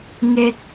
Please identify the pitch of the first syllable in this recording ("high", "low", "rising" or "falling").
low